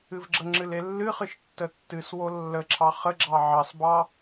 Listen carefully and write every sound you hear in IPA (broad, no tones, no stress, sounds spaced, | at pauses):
ɨ v ɡ͡ǁ ə ŋ͡ǁ ɨ l e lː ɨ χ ɨ ʃ tː ə tː ɨ s w o lː ə ǁʰ ɑ χ ə ɡ͡ǁ ɑ ʕ ɑ s b ɑ